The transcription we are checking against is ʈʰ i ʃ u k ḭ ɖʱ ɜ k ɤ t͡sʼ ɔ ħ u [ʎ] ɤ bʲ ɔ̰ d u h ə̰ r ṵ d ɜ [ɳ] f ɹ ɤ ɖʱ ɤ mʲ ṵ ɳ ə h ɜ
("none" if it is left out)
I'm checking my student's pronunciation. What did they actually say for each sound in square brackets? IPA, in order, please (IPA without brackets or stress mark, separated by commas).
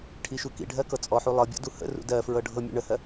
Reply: lˠ, none